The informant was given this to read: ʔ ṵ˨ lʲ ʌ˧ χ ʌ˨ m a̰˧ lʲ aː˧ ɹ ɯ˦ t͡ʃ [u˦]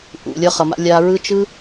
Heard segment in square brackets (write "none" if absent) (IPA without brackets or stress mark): ɯ˦